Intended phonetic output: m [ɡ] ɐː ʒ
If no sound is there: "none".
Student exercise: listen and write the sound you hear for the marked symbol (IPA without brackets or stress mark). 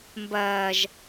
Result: b